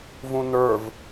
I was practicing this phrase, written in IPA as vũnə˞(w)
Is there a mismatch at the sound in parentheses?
yes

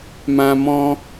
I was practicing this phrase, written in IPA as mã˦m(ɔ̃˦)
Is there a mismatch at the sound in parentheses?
no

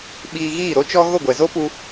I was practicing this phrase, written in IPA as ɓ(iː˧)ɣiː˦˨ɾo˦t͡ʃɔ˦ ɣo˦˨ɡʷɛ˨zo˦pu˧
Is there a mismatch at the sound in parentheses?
no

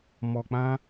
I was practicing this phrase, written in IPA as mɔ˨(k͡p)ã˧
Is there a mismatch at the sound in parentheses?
no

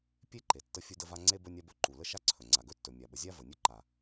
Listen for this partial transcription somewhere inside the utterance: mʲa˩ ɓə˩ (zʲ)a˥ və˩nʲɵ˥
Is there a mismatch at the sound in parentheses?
no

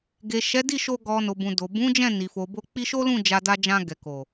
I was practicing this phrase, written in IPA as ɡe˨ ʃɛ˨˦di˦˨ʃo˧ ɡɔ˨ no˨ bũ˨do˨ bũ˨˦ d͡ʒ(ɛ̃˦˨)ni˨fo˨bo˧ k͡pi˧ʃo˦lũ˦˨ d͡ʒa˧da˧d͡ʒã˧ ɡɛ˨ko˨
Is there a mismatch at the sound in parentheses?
no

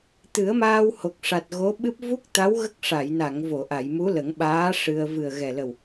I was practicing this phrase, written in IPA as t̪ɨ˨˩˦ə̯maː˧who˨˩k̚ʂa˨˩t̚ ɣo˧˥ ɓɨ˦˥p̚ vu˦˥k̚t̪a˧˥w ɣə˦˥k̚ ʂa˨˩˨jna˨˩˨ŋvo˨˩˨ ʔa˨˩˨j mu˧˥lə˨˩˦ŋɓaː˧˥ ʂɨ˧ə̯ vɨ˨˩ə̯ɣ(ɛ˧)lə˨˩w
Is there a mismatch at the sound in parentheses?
yes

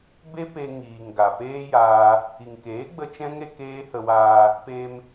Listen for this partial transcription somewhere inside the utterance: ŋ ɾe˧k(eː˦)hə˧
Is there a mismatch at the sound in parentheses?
no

